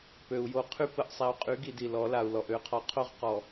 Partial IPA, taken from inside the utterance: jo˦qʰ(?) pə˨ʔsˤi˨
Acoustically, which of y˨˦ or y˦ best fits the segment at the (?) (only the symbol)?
y˦